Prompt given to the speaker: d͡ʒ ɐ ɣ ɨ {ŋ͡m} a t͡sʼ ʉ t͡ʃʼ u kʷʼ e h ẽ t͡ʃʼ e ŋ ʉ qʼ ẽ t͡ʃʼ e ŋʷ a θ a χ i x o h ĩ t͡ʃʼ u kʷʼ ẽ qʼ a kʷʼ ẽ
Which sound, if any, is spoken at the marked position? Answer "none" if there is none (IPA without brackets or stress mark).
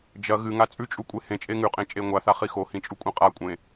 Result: ŋ